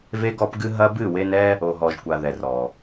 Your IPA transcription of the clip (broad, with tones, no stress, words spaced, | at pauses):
ve˦ɡɔ˦pɡɨ˦ ɦɐ˦bɨ˦˨ we˦n ɛ˦ | o˨ɦɔ˨ʒkʷa˨ ðɛ˨rɔ˨